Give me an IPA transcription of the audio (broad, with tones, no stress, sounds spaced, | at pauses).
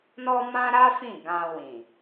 n ɔ˦ m ã˦ ɾ a˦ f ĩ˦˨ ɡ ã˧ w ĩ˨